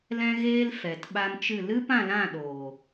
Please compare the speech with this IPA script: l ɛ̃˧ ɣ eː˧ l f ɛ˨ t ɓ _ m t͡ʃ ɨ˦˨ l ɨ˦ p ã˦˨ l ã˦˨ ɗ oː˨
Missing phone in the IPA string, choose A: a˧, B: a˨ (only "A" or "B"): A